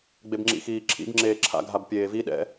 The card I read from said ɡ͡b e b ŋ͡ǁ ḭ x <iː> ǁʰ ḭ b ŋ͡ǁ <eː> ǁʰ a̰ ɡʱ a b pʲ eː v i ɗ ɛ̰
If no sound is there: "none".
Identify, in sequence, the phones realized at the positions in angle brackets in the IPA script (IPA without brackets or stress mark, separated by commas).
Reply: iː, eː